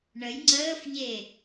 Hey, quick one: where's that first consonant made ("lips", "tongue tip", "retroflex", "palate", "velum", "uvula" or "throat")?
retroflex